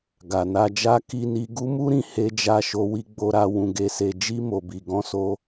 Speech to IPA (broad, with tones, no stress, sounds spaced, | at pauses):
ɡ a˨ n a˧ d͡ʒ a˦ k i˧ n i˧ ɡ u˦ m u˦ ɾ ĩ˧ h e˦ d͡ʒ a˦˨ ʃ o˧ w i˧ ɡ͡b o˧ ɾ a˧ w ũ˧ ɡ e˧ s e˧ d͡ʒ i˧ m o˨ b i˨ ɡ ɔ̃˧ s o˧